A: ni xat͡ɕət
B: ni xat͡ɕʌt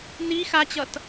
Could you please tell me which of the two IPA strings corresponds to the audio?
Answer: B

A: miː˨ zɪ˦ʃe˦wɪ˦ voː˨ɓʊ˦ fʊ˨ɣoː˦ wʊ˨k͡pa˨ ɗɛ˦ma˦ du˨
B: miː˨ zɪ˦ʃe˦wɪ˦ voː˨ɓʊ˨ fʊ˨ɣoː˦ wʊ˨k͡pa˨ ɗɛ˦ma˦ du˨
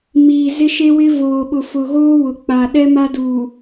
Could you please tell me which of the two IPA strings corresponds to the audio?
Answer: B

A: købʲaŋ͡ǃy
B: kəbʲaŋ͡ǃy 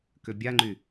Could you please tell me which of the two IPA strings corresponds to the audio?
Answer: A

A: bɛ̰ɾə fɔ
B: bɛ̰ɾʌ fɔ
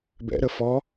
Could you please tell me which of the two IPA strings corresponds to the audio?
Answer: A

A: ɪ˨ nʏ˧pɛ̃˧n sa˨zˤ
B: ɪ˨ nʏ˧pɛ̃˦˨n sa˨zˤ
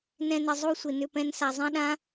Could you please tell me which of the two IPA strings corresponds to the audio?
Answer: A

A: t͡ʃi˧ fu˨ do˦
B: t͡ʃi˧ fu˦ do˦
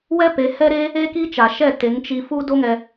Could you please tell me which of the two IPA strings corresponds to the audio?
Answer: B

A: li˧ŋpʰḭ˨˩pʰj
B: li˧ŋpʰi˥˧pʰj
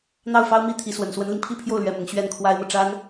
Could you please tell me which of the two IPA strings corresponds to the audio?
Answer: B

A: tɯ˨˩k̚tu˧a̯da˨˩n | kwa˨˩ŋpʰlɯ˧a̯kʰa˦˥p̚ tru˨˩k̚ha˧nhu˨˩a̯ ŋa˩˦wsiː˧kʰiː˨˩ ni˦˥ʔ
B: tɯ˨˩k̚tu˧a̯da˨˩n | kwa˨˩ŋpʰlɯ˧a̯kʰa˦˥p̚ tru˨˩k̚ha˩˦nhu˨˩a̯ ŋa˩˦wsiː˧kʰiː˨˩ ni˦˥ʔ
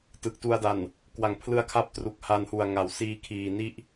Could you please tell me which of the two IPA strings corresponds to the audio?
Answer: A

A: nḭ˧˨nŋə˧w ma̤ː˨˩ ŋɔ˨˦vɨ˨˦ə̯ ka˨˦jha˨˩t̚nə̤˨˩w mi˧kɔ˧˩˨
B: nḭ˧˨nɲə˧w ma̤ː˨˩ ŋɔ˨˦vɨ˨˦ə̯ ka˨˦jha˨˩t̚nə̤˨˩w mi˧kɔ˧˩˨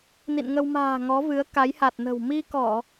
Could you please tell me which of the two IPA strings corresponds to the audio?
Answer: A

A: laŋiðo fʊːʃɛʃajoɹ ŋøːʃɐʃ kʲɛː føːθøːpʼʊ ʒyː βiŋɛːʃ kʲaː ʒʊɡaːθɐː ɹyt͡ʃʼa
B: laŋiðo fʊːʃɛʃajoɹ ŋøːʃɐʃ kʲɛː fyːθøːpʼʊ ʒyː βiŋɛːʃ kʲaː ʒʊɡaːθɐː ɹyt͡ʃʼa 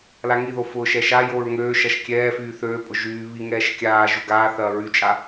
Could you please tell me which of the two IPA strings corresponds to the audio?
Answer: B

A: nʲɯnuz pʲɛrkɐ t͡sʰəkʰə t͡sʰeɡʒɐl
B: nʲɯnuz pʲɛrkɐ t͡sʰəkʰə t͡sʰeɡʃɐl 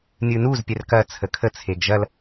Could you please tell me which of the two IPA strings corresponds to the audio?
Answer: A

